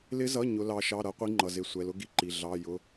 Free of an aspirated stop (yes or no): yes